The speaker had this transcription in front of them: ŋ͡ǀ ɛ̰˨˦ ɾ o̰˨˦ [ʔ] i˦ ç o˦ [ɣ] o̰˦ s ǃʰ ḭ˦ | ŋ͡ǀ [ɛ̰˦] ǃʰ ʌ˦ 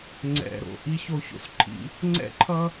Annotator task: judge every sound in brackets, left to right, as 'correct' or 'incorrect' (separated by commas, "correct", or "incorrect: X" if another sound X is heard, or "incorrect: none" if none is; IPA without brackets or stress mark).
correct, incorrect: ç, correct